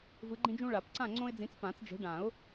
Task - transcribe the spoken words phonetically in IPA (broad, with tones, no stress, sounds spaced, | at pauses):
v ɯ˨˦ ɡ͡ǃ ĩ˦ d͡ʒ ũ˦ ɭ a˨˩˦ p ǀ ã˦˨ ŋ͡ǀ õ˦ ɪ̯ d͡z ĩ˨˦ t͡s p ã˨˩˦ t͡s d͡ʒ e̤˨˦ ɖ ã˨˩˦ ʊ̯